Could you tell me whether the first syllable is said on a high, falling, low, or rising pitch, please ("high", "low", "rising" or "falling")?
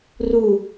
falling